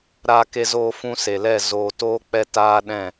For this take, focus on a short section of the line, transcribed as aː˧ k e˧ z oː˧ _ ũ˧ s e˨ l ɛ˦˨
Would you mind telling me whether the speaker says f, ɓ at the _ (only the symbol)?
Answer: f